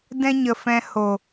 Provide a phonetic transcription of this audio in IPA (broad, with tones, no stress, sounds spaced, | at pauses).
d ɛ̃˦ ɲ ə˨ f ɛ̃˧ h o˨